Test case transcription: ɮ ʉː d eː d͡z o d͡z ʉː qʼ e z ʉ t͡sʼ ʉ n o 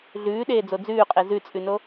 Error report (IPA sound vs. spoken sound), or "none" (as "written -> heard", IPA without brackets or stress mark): d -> ɗ